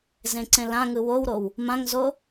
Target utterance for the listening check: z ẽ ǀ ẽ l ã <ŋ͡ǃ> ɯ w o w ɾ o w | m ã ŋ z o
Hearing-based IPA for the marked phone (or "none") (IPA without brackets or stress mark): ŋ